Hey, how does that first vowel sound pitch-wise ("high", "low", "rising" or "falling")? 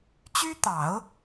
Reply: high